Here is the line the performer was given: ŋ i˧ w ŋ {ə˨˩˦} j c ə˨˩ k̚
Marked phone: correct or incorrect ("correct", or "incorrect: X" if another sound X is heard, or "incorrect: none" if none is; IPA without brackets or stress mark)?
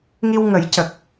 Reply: correct